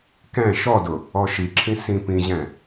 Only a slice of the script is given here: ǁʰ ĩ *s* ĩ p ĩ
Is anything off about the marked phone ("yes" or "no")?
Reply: no